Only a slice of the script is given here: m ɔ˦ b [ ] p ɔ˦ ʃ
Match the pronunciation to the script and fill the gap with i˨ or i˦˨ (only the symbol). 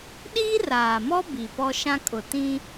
i˨